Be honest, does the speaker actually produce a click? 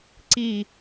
yes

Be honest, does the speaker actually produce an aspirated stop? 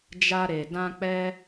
no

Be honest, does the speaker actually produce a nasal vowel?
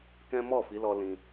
yes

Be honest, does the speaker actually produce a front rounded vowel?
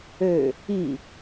yes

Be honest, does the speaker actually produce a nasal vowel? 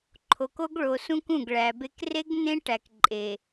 yes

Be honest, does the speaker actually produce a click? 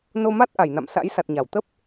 no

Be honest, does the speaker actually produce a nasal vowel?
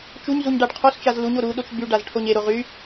no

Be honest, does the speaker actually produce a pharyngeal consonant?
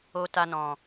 no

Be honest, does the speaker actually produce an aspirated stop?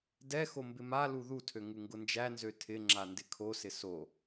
yes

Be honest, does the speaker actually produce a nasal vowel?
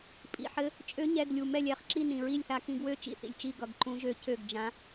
yes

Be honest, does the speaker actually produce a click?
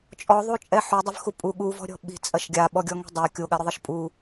no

